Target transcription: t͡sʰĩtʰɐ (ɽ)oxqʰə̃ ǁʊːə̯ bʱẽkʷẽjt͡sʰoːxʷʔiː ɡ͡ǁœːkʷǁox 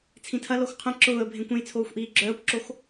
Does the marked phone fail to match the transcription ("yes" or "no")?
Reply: yes